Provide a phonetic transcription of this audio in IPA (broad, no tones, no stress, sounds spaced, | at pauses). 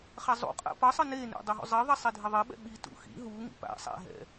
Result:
χ a zˤ ṵ qʼ a̰ p ʌ sˤ ɯ n e n ḛ dˤ ɛ ɦ ṵ zˤ e ðˤ ɛ sˤ e dʱ e ðˤ e ɓ ɛ̰ ɓ i t ṵ x ḭ ɦ u ŋ ḭ p a̰ sˤ a̰ ɦ ɛ̰